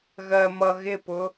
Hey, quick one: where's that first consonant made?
velum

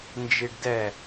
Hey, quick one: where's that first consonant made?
tongue tip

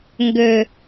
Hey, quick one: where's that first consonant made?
velum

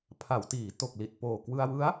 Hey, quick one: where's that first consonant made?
lips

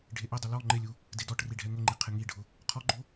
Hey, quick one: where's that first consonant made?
retroflex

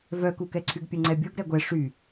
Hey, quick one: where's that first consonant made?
lips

